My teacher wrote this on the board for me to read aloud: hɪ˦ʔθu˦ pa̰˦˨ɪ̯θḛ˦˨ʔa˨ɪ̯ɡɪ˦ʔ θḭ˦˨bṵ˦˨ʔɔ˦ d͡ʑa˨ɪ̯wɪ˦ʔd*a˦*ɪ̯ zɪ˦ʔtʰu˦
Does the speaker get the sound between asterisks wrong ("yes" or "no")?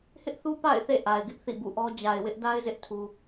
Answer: no